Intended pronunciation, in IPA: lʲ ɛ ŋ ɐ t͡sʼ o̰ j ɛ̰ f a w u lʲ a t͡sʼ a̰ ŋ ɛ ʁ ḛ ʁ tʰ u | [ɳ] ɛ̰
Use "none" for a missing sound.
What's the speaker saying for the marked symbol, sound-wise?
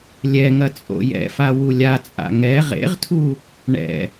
ɳ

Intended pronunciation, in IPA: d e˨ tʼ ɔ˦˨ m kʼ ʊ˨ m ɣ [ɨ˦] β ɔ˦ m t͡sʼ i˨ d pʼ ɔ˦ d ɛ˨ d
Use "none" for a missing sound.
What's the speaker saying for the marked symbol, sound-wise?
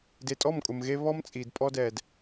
e˦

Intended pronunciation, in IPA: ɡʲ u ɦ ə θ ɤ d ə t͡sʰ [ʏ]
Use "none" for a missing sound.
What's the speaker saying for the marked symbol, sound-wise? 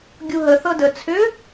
ʏ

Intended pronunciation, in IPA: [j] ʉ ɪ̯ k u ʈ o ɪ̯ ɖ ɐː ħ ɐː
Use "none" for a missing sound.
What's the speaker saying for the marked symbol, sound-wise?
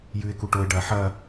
j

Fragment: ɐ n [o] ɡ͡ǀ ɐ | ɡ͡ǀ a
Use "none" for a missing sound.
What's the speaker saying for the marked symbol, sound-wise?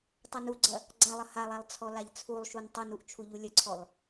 u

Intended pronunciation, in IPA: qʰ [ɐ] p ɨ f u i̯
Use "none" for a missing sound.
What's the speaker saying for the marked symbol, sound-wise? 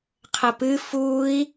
ɐ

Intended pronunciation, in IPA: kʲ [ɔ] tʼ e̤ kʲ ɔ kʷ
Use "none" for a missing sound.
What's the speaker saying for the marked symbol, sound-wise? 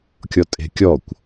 ɔ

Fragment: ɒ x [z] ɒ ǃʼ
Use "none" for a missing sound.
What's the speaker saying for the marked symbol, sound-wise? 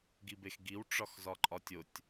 z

